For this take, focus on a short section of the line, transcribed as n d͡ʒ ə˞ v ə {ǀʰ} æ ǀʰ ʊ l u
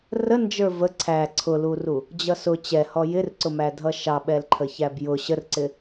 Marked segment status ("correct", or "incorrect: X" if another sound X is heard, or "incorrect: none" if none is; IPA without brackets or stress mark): correct